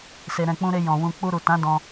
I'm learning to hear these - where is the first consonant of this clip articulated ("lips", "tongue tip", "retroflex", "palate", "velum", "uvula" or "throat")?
tongue tip